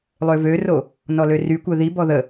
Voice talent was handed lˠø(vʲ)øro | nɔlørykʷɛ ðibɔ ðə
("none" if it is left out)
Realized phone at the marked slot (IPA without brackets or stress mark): v